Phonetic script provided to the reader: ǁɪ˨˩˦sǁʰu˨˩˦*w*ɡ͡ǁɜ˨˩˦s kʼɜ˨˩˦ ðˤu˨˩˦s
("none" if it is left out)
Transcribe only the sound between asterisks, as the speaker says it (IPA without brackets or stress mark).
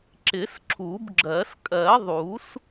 b